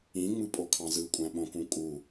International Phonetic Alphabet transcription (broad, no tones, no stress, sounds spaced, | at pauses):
ĩ ŋ͡m ɯ pʼ o kʰ ɑ̃ z ɯ kʷʼ æ̃ ɓ õ k ũ kʼ u